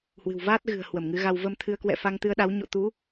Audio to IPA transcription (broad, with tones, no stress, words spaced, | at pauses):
hwɨ̤˨˩wvaː˦˥t̚ɣɨ̤˨˩ə̯hwə˧˩m ŋɨ˨˦ɣa˧w və˧mt̪ʰɨ˨˦ə̯kwɛ̰˧˨ fa˧ŋt̪ɨ˧ə̯ɗa˨˦w ɲo̰˧˨t̪u˨˦